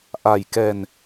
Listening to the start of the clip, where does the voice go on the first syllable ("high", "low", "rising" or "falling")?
low